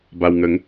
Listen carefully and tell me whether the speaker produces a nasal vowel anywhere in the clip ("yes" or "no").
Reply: no